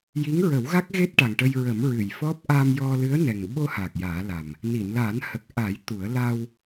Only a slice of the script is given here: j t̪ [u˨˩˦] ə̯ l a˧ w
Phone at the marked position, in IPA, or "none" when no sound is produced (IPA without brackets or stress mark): u˨˩˦